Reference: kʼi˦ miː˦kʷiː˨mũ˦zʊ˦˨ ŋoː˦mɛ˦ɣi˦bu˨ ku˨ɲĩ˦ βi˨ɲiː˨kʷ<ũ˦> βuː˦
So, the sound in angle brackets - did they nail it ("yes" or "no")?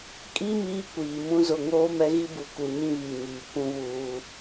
yes